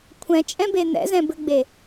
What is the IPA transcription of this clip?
kʷʰ ɛ̃ t͡ʃʼ ɛ̃ b e n̪ ɛ̰ z ɛ̃ b ɘ ɡ͡b e

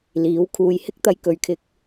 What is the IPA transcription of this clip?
l iː˨˥ w kʰ uː˨ j h ɪ˥ k̚ t̪ ɐ˧ j k ɵ˨ ɥ kʰ ɪ˧ k̚

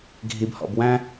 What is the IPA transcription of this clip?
ɡʱ i˨ b h ɔ̰˨ b w æ̃˦

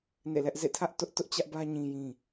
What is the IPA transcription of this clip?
n ḛ˦˨ l ɛ˦ ʔ z ḛ˦˨ tʰ ä˦ ʔ t ʊ˦ ʔ t ʊ˦ ʔ t͡ɕ ä˦ ʔ b ä˦ ɲ ĩ˦ j ĩ˦

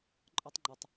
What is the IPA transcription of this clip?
ǃʼ ɒ˥ tˤ ŋ͡ǃ o˧ tˤ

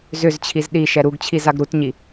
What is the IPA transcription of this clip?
z ʏ z t͡ɕʰ i z ɗ i ʃ ɛ ɾ u ɡ t͡ɕʰ i z a ɡ ɾ u t ɲ i

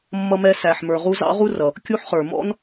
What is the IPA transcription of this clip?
mː ʌ˦ m ɛ˦ s æ˨ ħ m ə˞˨ ʁ u˦ z ɑ̰˥ ʁ u˥ r ʌ˨ | kʲ u˦ ħ χ ə˞˨ m ɔ̰˥ n

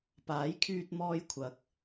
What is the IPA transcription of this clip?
p aː˨˥ j kʰ yː˧ t̚ m ɔː˧ j kʷʰ ɐ˨˥ k̚

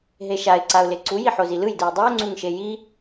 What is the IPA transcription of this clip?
ɦ e ʃ a ɪ̯ ǀ a ʊ̯ l e ǀ u j i ħ o z i l ɯ j d ɯ j dˤ i ʊ̯ ŋ͡ǀ u ŋ ʃ e j i

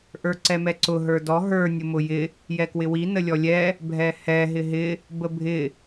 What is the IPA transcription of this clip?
ʔ ə˞ ǀ ɛ m ɛ ǀ ʊ ɦ ə˞ d ɔ ɦ ə˞ nʲ ʊ m ʊ j ɪ | j ɛ k w ɪ w i n ə lʲ ɔ lʲ ɛ | bʱ ɛ h ɛ ɦ ɪ ɦ ɪ | b ə bʱ ɪ

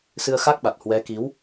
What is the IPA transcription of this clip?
s ɨ˧ ə̯ x a˦˥ k̚ ɓ a˨˩ t̚ h w ɛ˨˦ k i˨˦ w

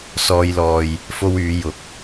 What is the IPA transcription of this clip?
s ɔː˧ j l ɔː˨ j | f o˥ w yː˨˧ j ʊ˨ k̚

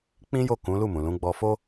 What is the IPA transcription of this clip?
k͡p ĩ˦ j o˦˨ k ũ˨˦ l u˦˨ m ũ˨ l ũ˨˦ ɡ͡b ɔ˧ f o˦

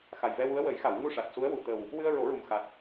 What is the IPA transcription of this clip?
x a˨˩ j v ɛ˧ w u˧˥ ə̯ w ə˨˩˦ j x a˨˩˨ w ŋ u˧ ʂ a˨˩ t̚ s u˧˥ ə̯ w u˨˩˨ t̪ ə˨˩ w | w ɨ˧ ə̯ ɹ o˨˩˦ ɹ u˨˩ m x a˨˩ t̚

